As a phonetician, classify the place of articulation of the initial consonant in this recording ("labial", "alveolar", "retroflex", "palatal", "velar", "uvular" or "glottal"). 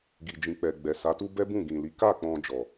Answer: velar